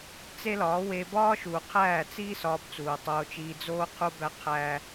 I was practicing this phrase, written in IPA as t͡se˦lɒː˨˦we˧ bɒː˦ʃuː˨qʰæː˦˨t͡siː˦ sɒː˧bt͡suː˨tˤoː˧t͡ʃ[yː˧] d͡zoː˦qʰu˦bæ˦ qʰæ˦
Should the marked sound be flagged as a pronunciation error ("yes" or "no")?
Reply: yes